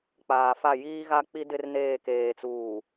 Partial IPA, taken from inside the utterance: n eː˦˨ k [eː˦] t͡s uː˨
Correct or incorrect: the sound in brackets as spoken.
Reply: incorrect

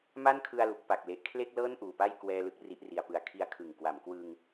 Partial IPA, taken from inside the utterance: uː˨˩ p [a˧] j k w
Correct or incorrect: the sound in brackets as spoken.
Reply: incorrect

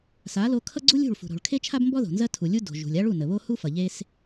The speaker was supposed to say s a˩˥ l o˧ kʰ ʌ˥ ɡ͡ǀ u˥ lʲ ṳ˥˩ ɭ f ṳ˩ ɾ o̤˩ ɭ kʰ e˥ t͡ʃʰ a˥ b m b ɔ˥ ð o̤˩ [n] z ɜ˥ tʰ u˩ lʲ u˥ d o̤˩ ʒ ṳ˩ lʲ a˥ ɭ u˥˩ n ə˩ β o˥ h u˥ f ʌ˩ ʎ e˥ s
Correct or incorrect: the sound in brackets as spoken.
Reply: correct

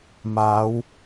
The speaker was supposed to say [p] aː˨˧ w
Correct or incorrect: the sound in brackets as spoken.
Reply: incorrect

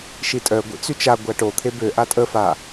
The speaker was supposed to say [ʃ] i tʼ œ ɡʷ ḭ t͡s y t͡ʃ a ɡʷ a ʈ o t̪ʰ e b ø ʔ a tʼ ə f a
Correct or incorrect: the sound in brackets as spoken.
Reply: correct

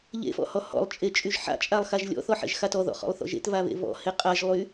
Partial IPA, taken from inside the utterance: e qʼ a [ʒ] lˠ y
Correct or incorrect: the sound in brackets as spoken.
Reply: correct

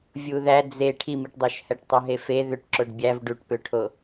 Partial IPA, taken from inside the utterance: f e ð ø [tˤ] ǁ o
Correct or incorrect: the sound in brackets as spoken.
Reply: incorrect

